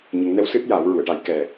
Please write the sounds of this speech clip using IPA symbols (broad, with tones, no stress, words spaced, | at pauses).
ɲə˨˩˦ŋnɛ˧˥w sɨ˦˥t̚jaː˨˩˦wɹu˨˩˨ə̯ʈa˨˩˦j kɛ˨˩